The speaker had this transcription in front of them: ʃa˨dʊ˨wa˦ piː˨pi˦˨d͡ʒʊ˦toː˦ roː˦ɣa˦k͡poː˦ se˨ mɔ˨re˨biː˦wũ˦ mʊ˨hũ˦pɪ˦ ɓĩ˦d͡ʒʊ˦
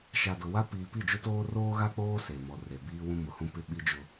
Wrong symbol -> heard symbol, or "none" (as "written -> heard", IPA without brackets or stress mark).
ĩ˦ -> i˦